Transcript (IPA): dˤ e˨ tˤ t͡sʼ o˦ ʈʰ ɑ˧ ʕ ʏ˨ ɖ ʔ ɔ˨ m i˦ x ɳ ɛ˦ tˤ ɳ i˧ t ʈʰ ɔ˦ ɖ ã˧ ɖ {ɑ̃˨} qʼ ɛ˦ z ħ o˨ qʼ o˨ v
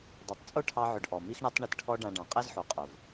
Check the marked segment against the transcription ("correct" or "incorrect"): correct